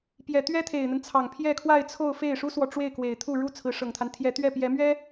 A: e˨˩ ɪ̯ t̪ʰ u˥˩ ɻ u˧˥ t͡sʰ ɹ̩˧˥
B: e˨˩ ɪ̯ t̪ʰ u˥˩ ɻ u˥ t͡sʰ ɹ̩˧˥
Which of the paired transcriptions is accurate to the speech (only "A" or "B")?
B